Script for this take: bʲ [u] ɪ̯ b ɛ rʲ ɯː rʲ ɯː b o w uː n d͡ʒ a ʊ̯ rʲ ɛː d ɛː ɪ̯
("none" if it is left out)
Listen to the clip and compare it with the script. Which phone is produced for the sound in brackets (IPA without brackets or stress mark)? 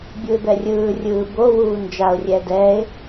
u